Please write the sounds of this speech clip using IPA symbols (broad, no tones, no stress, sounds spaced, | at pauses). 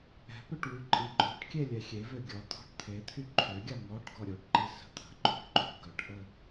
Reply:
ɛ̤ p ø ʈ w y ǃʼ i ǃʼ o̤ ʈ kʲ e lʲ ɛ xʲ e v ø ɡʲ ɔ t̪ʰ ɔ̤ ʈ t̪ʰ e t̪ʰ y ǃʰ ø ɡʲ a ŋ ɔ ʈ ɡ ɔ ɾʲ o ʈ ǃ i s ə̤ t̪ʰ ə̤ ǃ o̤ ʈ ǃʼ o̤ ɡ œ ʈ ʔ ə